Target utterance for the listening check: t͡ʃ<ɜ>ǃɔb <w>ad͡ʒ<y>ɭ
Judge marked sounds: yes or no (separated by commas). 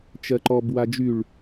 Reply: yes, yes, yes